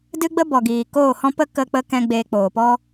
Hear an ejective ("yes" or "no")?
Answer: no